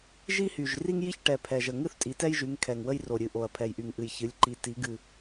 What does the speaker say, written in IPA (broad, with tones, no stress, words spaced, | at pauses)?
ʒi˦hy˨˩ʒ ri˦ŋji˦çʈɛ˨˩ pʰɛ˨˩ʒə˨˩ ŋɨ˦θtʼi˩˧tɛ˦jʒy˩˧ŋ kʰɛ˨˩ŋ wə˦jro˨˩ɾʲɨ˨˩ʔo˨˩ɐ̯ pʰɛ˨˩jʔy˨˩ŋʔɨ˨˩j çɨ˩˧lʲǃi˨˩ ti˩˧ɡɨ˨˩